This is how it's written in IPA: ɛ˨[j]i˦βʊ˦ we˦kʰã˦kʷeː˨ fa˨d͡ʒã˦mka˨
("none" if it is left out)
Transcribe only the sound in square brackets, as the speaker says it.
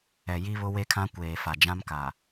j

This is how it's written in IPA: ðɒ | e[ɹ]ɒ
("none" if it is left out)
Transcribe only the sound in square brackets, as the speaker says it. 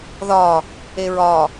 ɹ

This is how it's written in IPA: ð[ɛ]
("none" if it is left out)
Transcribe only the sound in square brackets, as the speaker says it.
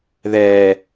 ɛ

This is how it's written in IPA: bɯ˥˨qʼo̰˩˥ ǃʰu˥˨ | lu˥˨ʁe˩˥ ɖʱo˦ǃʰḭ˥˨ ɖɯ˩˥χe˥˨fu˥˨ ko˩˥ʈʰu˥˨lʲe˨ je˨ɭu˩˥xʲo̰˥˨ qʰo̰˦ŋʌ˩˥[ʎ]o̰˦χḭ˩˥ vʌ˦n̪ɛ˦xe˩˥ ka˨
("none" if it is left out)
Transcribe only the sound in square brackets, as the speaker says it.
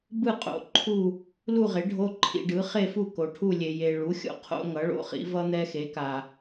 ɭ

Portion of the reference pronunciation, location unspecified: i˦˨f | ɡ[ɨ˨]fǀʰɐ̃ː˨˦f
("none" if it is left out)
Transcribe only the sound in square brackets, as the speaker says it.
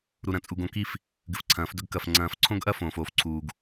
ɨ˨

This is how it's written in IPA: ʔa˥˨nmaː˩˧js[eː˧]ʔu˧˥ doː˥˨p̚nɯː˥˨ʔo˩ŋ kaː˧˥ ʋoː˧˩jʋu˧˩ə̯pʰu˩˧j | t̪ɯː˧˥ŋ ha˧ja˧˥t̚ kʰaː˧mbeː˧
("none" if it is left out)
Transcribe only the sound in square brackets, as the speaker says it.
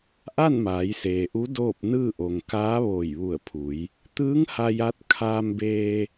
eː˩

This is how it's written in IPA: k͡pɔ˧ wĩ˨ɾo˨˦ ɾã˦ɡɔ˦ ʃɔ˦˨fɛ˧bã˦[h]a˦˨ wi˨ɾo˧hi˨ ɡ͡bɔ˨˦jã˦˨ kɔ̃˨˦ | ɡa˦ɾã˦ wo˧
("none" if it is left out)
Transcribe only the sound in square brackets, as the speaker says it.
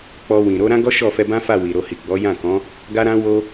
f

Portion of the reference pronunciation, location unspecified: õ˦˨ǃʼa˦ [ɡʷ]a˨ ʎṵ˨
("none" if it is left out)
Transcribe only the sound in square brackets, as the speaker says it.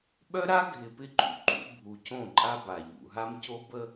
b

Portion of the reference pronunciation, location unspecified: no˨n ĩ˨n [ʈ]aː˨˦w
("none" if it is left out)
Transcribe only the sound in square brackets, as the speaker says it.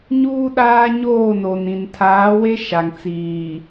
tʰ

